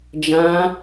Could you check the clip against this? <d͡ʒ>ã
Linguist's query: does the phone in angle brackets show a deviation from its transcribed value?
no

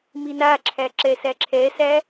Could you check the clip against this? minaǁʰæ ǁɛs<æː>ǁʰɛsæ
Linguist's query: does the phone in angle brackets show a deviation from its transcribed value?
yes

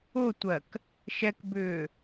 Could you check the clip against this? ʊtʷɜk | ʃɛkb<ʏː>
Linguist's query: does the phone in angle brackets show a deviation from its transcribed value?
no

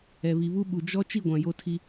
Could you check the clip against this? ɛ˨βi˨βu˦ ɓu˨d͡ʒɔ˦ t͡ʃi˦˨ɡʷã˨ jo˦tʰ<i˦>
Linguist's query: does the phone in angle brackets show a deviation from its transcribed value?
no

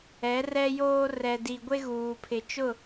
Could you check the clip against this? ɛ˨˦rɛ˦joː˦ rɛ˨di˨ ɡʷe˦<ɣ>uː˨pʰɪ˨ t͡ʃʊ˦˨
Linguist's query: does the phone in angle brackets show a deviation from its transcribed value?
no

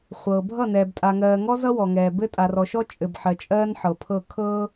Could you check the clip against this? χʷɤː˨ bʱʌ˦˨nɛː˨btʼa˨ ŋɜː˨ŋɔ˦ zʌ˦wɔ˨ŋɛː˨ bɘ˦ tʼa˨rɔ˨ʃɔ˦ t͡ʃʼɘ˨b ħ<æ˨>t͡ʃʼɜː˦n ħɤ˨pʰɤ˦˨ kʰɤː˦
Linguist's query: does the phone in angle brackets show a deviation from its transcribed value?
yes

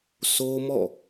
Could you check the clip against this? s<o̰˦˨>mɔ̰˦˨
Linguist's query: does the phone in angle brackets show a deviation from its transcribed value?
yes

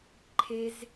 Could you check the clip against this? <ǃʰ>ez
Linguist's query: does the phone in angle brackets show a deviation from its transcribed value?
no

